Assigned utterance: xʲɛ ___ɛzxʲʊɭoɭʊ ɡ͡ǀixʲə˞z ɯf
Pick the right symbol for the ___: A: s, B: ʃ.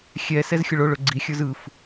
A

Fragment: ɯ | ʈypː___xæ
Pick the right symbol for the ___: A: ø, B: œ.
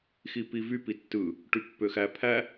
A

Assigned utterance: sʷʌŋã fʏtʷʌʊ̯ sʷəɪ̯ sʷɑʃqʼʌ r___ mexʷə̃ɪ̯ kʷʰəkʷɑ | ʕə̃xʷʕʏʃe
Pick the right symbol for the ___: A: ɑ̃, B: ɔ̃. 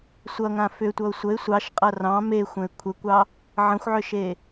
A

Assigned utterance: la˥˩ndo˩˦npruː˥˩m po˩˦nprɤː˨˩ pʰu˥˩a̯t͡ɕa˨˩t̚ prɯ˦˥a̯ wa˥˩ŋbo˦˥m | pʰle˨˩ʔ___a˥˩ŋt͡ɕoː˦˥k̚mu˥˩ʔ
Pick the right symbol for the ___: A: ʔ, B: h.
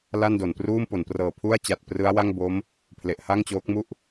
B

